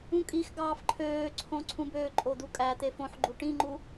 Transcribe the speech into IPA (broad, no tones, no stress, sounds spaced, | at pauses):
ũ kʼ i x ɡ ɑː f ǃʰ øː ǀʰ õ ǀʰ ũ b øː ǃʼ o d̪ u kʼ æ t̪ e f õ ħ ɡ͡ǃ u ʈ ĩ ŋ͡ǃ u